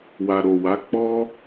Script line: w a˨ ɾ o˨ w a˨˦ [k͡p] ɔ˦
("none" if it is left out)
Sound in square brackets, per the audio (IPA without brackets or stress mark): k͡p